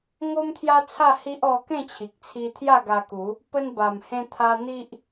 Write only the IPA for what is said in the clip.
ŋ o˦ m t̪ʰ j a˦ t͡sʰ a˥˧ h i˦ ʔ ɔ˧ k ẽ˥˧ t͡ɕʰ i˨ k̚ t͡sʰ i˧ t̪ʰ j a˥˧ ɡ a˧ k u˨˦ | p ə˧ n b a˨˩ m h ẽ˧ t̪ʰ a˧ n̪ i˦ ʔ

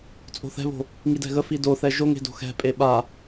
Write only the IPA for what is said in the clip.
t͡sʼ o̤ θ ɛ̤ β o̤ | ŋ i d ɛ̤ ɣ ə f i d o θ ɛ ʒ o ŋ e̤ d o̤ x ɛ̤ pʼ e ɓ a

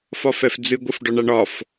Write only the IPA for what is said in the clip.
f ɒ f ɛ f d͡z ɨ ɡʷ ɨ f ɖ ɒ ɳ a ɳ ɒ f

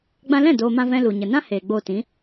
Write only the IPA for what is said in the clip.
ɡ͡b ã˧ l ɛ̃˦˨ d oː˧ m ã˧ v ɛ̃˧ l u˨ ɲ ə˨ n ã˦ h eː˨ ɡ͡b oː˧ t ĩ˨˦

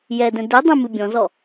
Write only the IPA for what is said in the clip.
j ɛ d ɛ̃ d e dˤ ɛ̃ m ɨ bʲ ɔ̃ z ɔ

